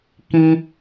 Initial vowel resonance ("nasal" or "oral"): nasal